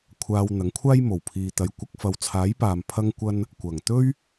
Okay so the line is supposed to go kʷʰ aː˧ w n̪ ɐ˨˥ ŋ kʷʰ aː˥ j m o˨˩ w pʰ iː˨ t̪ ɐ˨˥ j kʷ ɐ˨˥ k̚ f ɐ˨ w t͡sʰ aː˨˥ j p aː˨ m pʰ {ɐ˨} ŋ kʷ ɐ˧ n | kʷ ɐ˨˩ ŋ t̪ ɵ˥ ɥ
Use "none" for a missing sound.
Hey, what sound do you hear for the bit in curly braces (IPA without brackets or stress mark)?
ɐ˧